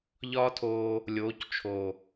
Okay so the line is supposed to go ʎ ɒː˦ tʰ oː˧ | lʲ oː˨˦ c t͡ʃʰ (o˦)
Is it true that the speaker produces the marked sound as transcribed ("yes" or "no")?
no